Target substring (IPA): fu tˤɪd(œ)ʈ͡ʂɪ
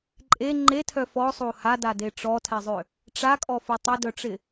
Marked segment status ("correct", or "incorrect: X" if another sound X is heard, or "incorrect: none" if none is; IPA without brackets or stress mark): correct